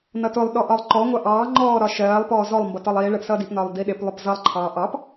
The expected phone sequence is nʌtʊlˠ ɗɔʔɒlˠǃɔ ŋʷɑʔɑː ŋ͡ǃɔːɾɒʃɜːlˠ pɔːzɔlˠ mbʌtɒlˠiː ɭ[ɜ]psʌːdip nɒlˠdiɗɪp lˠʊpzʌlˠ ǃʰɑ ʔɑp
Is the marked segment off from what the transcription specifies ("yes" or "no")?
no